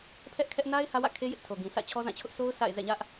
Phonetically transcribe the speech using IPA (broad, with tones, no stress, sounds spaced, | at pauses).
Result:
pʰ ɛ˦ ʔ kʰ ɛ˦ ʔ n a˦ ɪ̯ h ä˦ w ä̰˦˨ kʰ e˦ j ɪ˦ ʔ tʰ o˨ ɡ ĩ˨ s ä̰˦˨ t͡ɕʰ ɔ˦ z ã˦˨ t͡ɕʰ ʊ˦ ʔ s o˦ ʊ̯ s a̰˦˨ ɪ̯ z ɛ̰˦˨ ɲ ä˦ ʔ